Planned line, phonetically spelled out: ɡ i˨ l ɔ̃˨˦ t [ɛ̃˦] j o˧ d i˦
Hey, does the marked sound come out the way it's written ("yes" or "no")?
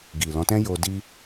yes